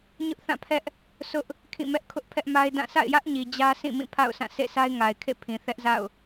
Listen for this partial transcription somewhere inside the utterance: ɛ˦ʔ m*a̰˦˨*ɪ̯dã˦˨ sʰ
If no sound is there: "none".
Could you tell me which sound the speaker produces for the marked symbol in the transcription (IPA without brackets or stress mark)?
a˦